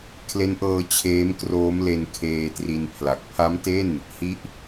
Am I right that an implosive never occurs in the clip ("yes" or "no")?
yes